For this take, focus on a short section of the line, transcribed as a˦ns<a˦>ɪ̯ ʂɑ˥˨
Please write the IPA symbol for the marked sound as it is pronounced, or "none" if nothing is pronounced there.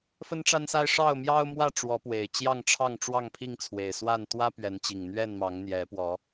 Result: a˦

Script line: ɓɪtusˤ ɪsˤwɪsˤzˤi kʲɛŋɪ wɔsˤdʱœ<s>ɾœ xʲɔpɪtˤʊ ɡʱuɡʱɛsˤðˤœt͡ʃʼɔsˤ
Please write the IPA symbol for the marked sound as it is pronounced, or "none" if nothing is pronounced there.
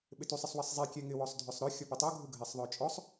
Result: sˤ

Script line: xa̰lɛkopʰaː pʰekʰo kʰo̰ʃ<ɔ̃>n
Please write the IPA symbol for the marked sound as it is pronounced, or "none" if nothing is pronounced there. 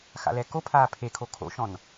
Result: ɔ̃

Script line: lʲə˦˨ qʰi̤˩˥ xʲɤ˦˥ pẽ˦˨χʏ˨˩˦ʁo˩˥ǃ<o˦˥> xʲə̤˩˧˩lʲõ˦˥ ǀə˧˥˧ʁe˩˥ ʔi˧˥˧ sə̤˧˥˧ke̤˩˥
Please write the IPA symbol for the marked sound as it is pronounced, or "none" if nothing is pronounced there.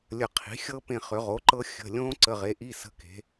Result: ɤ˦˥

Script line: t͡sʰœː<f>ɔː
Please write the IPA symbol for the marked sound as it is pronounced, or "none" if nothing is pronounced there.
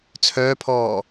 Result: pʰ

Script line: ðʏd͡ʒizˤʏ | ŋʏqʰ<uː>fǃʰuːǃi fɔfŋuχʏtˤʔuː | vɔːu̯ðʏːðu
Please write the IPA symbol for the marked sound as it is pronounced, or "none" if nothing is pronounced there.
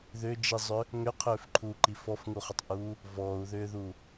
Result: ʏː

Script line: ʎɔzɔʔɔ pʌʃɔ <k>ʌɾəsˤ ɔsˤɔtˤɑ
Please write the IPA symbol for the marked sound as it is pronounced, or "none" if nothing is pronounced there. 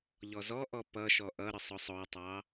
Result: ʔ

